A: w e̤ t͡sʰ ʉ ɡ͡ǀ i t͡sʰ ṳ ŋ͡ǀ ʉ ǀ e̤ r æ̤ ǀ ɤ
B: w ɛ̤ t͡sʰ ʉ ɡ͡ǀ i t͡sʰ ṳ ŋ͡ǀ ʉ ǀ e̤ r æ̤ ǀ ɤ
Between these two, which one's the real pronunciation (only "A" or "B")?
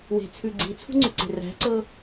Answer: A